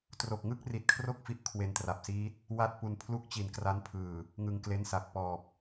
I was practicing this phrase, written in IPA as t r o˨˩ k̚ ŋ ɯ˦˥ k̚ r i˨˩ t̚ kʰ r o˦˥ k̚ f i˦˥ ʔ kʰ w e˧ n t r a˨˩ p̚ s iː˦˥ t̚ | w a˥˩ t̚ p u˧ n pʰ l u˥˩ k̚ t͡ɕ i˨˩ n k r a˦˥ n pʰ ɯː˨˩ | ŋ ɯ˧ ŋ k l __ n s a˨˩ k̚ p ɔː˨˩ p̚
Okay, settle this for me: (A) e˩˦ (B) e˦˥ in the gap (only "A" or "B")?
B